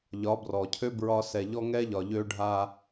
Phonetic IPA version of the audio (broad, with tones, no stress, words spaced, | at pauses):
ʎɒ˨˦brɔ˨cʰø˦ bɹɒ˦ sɛ˨ʎɔ˦ŋɛ˦ʎɒ˨ ʎø˦ɖʱa˦